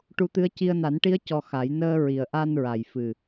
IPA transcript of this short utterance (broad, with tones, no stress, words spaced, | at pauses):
ʈu˧˥t̪ɨ˧˥ə̯ ci˧ə̯na˨˩˦nʈi˧˥ə̯ cɔ˧xa˨˩˦j nəː˧ ɹi˨˩ə̯ʔa˧n ɹa˨˩jfɨ˨˩